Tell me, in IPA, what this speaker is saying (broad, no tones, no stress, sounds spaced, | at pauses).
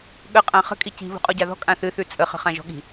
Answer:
ɠ ə qʼ ã χ ə̤ kʼ i c i̤ β ṳ qʼ ɔ ɟ a ð ɔ̤ kʼ ã θ ɨ θ ʉ t͡sʼ ə χ ə̤ χ ã ʒ ɔ̤ ɠ i̤